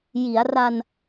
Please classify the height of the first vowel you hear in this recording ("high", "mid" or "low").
high